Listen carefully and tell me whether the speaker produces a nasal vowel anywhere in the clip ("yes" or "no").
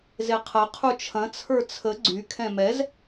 yes